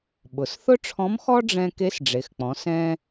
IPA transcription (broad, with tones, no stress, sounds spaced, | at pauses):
ɓ ʊ˩˧ s θ ʊ˥ ʈ͡ʂʰ ɔ̃˧˥ m x ɔ˥ ɖ͡ʐ ɛ̃˧ k e˧˥ s ɖ͡ʐ e˩˧ x k͡p ɔ̃˩˧ s ɛ̃˧